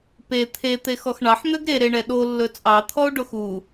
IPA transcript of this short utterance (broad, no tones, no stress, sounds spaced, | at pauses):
p e t̪ʰ e t̪ e x ɔ x ɳ ɑ ħ n̪ ø ɡ ɾ e ɾ e ɳ ɛ ɗ o lː ɵ t͡sʼ ɑ t̪ʰ ɔ o̯ ɖ o x u